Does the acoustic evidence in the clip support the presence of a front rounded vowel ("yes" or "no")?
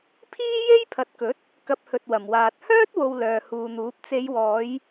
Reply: yes